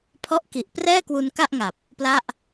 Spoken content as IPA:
pʰ ɔ˦˥ ʔ k i˨˩ ʔ p r ɛː˥˩ k w u˧ n k a˥˩ ʔ ŋ a˨˩ p̚ | p l a˥˩ ʔ

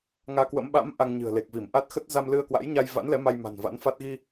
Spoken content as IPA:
ŋ aː˧ k w ə̰˧˥ m ɓ a̰˧˥ m ʔ a˧ ŋ ɲ ɨ̤˨˩ ə̯ l e˨˩ k̚ v i˧˩ m ʔ a˦˥ t̚ x ə˦˥ t̚ z a˧ m l ɨ˧ ə̯ k w a̰˧˥ j ɲ a˧ j v a̰˧˥ n l ɛ˨˦ m a˧ j m a̤˨˩ n v a̰˧˥ n f a˦˥ t̚ ɣ i˧

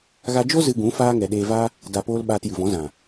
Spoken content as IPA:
ɣ a˧ d͡ʒ o˦ z ɨ˧ ɡ ũ˨˦ f aː˦ ŋ ɛ˨ ɗ eː˧ v a˦ | d a˨ p oː˧ l ɓ aː˧ t j ɨ˨ v ɔ̃˨˦ z ã˨

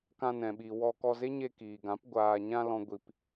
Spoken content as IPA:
k ã˧ n ɛ̃˨ ɓ i˨ w ɔ˧ k ɔ˧ z e˦ ɲ e˧ k iː˨ ɡ ã˨˦ p ɡʷ aː˨ ɲ ã˧ l ɔ̃˦ ɡʷ i˧ p

